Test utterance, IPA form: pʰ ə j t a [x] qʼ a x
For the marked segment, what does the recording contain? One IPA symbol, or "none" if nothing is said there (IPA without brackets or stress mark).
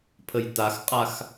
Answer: x